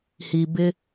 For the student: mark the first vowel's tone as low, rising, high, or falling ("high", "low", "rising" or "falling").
low